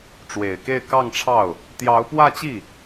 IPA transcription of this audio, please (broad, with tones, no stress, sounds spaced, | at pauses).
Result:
ʈ͡ʂ w e˨˩ ɪ̯ k e˥˧ ɪ̯ k ɑ˥˧ ŋ ʈ͡ʂʰ ɑ˥˩ ʊ̯ | t̪ j ɑ˧˥ ʊ̯ p w ä˥˧ t͡ɕ i˥˩